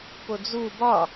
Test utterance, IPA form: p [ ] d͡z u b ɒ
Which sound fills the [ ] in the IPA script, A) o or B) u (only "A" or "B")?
A